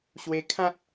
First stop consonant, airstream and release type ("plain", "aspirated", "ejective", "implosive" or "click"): aspirated